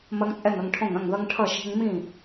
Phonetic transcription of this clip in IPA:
m ɐ˦ ŋ t͡sʼ ɛ˥˨ ŋ ɐ˦ ŋ ʈʰ õ˥˨ ŋ ɐ̃˥˨ ŋ ð ʌ˦ ŋ ʈʰ ʌ˥˨ ʃ e̤˦ ŋ m ĩ˥˨

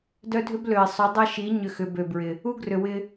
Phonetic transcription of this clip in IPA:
d œ˦ dʱ ʏ˦ b l ø˨ i̯ sˤ ʏ˨˦ dˤ ɐ˦ ʃ i˨˦ ɲ ʏ˧ x ʏ˨ b ø˨ b ɹ ɪ˨ | u˦ ɡ r ʏ˨ w ɪ˧

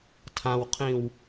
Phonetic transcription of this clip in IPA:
tʰ ã w qʰ ĩ w

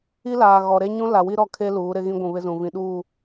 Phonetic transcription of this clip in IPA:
i˦ l aː˨ ɣ ɔ˨ ɾ e˦ ɲ ũ˦ l a˨ w i˦ ɾ ɔ˦˨ kʰ e˦ l uː˨˦ ɾ ɪ˦ ɣ ĩ˦ ɡʷ ũ˨ β ɪ˦ z ũ˨ v ĩ˨ ɗ uː˦˨

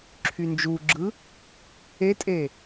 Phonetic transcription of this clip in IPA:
ǁʰ y n d͡ʒ u ɡ͡ǁ ɯ | e tʼ e

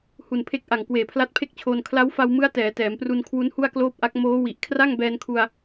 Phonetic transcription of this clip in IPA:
h u˨˩ n pʰ e˦˥ k̚ ʔ a˨˩ ŋ k w eː˨˩ pʰ l a˦˥ t̚ pʰ e˥˩ k̚ t͡ɕʰ oː˧ n kʰ l a˦˥ w f a˧ w m ɯ˦˥ a̯ t ɛː˩˦ t ɛː˩˦ m p r u˧ n kʰ w u˦˥ n h u˥˩ a̯ k l oː˥˩ p̚ ʔ a˦˥ k̚ m oː˦˥ w i˨˩ ʔ kʰ r a˥˩ ŋ b ɛː˧ n kʰ u˧ a̯

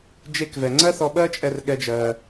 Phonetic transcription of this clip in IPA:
d͡ʒ e˧ k v ɛ˩ ŋ͡ǀ ɜ˥ θ ɔ˧ ɓ ɜ˥ t͡ʃʼ ɛ˧ r ɠ ɛ˧ d͡ʒ ɜː˩

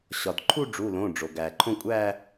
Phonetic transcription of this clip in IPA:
ɕ ɒ˩ d ǃʰ u˥˧ ɖ͡ʐ u˩˧˩ l õ˩˧˩ ɖ͡ʐ o˩ ɡ æ˩ ǃʰ õ˥˧ kʷʼ æ˥˧

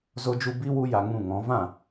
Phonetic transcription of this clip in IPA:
z o˧ d͡ʒ u˧ b i˦ w u˦ j a˧ ŋ ũ˦˨ ŋ ɔ̃˨˦ v ã˦˨

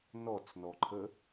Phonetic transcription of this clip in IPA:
n ɔ t͡s n ɔ ǃʰ ə

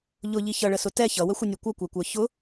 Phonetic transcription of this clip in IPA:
ʎ ʊ ʎ i ç ʌ ɭ ə s ʊ t ɛ ç ʌ w ə xʷ ə nʲ u kʷ ʌ kʷ ɛ kʷ ə˞ ç ʊ

